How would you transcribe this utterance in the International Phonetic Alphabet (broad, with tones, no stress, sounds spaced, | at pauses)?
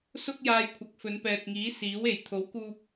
s ʊ˥ k̚ j aː˧ j kʷʰ ɐ˨˥ k̚ f ɵ˨˧ n p ɛː˨ t̚ ŋ iː˨˥ s iː˨˥ w e˨˩ j t̪ʰ o˨˥ w k uː˧ p̚